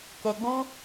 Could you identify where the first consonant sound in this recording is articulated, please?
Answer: velar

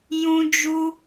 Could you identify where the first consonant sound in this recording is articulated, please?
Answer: palatal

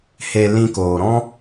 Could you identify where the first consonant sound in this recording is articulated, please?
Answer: glottal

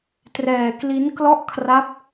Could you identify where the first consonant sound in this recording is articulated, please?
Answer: alveolar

